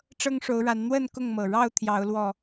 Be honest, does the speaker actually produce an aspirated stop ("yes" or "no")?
yes